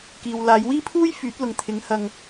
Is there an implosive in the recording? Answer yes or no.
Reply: no